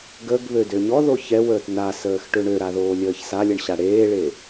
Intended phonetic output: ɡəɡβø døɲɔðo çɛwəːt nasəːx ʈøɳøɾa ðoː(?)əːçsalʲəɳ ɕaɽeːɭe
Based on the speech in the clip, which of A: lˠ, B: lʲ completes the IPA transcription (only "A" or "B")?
B